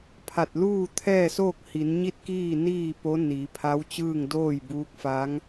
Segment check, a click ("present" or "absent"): absent